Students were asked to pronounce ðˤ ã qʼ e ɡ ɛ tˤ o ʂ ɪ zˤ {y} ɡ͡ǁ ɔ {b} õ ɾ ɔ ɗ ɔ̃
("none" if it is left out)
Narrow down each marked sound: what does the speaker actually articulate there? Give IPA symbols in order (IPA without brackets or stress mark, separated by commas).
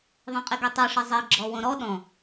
e, w